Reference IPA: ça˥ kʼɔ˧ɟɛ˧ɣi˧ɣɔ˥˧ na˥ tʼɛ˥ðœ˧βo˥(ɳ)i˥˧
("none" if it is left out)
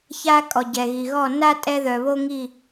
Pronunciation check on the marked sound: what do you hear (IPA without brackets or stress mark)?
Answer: ŋ